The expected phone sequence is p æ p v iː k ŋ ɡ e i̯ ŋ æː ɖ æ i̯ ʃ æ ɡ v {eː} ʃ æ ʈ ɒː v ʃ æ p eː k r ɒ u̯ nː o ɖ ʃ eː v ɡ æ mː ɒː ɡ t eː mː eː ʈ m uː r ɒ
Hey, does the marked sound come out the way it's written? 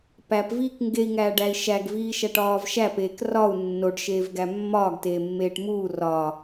no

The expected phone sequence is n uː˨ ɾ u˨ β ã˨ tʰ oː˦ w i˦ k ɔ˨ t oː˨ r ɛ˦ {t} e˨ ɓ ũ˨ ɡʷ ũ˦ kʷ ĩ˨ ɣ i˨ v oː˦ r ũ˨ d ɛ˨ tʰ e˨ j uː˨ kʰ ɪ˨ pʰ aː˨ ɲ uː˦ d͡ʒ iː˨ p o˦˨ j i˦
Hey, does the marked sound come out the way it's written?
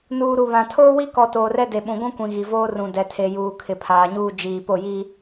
no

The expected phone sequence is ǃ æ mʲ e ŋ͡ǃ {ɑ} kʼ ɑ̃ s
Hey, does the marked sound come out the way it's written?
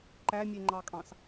yes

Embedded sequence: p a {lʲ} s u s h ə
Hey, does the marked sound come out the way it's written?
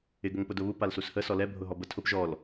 no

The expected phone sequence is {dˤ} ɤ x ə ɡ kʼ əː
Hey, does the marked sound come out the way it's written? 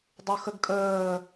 yes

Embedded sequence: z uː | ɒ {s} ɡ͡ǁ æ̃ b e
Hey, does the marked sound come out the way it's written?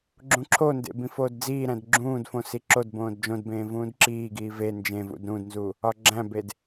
no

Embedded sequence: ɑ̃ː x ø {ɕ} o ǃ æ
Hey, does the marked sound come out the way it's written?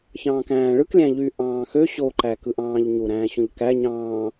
yes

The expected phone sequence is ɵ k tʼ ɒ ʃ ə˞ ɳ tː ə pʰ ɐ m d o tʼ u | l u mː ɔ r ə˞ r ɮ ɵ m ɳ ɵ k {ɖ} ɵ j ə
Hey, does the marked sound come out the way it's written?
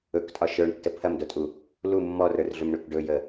yes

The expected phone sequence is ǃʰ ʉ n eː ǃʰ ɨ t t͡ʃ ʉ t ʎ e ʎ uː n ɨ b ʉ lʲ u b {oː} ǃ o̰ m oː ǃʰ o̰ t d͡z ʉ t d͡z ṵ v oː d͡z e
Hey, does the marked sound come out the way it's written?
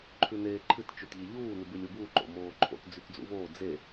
no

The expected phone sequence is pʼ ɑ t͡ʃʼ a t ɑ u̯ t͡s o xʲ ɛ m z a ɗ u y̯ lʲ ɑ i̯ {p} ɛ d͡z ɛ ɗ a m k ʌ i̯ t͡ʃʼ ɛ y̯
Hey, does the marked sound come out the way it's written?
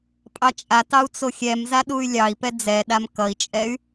yes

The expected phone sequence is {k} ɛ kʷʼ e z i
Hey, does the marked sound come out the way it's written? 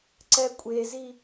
no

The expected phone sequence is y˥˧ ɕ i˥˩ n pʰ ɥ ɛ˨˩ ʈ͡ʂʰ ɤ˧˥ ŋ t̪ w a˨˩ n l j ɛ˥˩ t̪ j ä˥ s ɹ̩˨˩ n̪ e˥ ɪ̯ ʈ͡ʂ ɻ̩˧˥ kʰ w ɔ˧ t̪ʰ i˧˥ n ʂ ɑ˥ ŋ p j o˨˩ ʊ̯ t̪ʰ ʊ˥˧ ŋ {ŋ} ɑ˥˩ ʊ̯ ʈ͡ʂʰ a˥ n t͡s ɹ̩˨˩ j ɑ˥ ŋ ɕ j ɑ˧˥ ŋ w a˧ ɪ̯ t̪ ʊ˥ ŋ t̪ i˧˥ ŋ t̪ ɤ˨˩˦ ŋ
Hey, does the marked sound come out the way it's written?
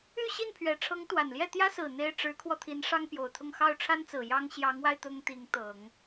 no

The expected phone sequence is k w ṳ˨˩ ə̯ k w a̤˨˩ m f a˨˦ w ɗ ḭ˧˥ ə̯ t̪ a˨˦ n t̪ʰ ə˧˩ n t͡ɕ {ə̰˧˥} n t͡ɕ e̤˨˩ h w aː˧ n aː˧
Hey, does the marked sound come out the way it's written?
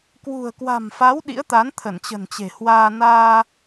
no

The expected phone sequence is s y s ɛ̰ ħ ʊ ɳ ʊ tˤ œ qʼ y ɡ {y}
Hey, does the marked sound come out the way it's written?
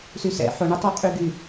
yes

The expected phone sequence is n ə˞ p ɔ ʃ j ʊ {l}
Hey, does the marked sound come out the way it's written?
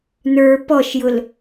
yes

